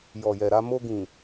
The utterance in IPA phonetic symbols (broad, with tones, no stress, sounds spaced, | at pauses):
j ɔ˨ j ɛ˨ ɾ a˧ m o˧ ɡ ĩ˨